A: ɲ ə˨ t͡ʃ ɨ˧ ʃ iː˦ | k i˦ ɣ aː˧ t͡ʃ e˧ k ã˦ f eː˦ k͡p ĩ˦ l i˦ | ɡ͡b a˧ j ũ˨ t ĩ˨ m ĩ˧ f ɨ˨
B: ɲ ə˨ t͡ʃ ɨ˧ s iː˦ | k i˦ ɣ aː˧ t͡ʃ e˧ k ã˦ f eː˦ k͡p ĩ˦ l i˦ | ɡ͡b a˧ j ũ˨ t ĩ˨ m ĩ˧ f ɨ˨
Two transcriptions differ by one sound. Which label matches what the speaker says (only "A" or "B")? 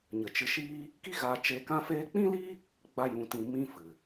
A